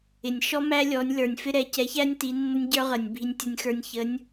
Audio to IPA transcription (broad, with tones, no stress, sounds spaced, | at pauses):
ɪ˨˩ nʲ ʃ ɔ˦˥ m æ˦˥ lʲ ɔ˨˥ nʲ l ə˞˨˩ nʲ f ɪ˦˥ ɾ ɛ˨˥ c ɛ˨˥ ç æ˦˥ nʲ t i˨˥ nː ə˦˥ nʲ ɟ ə˞˦˥ ʁ ə˨˩ nʲ bʱ i˧ nʲ tʲ ʌ˧ nʲ x ə˞˧ nʲ ç ə˨˥ nʲ